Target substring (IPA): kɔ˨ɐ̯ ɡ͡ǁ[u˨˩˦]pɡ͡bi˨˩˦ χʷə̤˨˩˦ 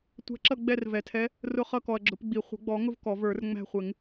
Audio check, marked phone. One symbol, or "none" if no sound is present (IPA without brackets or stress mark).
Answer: ʊ˨˩˦